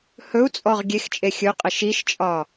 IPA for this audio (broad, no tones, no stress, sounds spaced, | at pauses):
h ɵ u̯ t͡sʼ ɔ ʁ ɡʲ e x t͡ʃʼ e xʲ ɵ qʼ ə ʃ i ʃ t͡ʃʼ ɒ